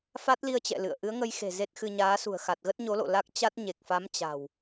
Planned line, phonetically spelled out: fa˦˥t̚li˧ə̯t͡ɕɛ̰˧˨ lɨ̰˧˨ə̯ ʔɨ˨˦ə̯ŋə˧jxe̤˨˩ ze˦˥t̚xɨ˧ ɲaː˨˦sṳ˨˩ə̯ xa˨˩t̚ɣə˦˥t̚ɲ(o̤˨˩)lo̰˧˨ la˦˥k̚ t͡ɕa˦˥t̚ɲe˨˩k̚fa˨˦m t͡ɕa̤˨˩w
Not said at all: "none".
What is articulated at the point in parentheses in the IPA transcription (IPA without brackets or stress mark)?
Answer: o˨˦